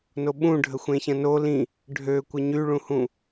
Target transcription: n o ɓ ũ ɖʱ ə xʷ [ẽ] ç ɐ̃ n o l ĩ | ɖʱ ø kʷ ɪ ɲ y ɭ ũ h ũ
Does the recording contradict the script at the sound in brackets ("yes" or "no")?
no